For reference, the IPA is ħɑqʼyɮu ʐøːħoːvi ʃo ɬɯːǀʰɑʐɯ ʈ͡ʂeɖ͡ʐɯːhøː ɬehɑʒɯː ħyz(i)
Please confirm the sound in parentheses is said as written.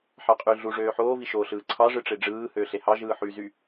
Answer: no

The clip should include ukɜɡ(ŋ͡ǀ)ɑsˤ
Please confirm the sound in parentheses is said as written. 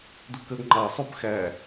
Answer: no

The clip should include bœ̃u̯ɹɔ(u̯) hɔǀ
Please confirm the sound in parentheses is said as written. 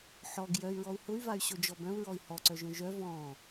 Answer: no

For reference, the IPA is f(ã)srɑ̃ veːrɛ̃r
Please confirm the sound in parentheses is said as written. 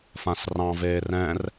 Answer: yes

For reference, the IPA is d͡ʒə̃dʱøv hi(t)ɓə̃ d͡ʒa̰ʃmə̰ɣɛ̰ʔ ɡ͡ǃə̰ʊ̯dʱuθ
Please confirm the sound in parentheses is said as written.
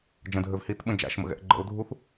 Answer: yes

